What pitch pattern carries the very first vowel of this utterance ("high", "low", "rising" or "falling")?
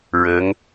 rising